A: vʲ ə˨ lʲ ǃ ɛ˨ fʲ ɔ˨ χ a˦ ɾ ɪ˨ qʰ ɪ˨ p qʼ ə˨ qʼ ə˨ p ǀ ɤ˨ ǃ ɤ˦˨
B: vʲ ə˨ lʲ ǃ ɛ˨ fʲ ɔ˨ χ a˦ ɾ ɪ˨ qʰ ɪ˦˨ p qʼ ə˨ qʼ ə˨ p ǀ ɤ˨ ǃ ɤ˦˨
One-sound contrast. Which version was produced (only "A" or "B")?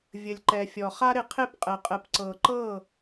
B